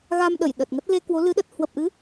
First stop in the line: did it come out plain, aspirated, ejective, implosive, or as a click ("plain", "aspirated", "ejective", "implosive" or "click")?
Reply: implosive